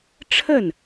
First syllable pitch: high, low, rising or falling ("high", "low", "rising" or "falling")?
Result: falling